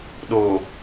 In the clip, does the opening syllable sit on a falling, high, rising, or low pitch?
low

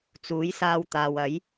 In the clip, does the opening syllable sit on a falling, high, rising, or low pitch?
rising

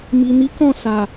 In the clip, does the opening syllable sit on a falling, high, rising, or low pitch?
low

